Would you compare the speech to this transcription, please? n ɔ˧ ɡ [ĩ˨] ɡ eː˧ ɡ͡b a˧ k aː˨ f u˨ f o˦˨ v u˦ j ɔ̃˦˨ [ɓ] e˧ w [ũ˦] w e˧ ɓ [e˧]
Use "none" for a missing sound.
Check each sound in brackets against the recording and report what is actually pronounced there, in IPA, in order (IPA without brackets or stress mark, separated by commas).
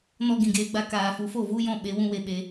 ĩ˨, ɓ, ũ˦, e˧